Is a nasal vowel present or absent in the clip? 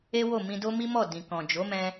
present